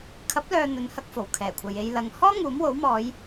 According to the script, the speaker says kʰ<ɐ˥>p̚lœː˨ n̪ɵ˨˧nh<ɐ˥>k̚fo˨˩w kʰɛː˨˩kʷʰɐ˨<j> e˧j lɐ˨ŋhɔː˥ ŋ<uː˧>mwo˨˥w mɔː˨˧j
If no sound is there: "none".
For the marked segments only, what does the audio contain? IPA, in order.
ɐ˨˥, ɐ˧, j, uː˨˥

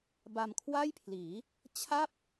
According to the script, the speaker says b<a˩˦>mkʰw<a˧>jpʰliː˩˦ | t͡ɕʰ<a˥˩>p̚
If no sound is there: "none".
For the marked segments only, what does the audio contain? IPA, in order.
a˧, a˥˩, a˥˩

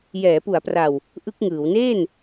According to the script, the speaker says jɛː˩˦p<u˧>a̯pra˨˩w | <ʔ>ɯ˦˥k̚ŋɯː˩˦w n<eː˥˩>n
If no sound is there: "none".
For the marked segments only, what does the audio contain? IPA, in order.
u˩˦, ʔ, eː˥˩

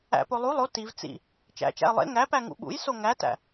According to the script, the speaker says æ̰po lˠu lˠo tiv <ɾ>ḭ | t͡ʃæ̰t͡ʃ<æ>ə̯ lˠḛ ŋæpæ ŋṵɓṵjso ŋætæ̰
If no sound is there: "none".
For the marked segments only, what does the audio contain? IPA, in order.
t͡s, æ̰

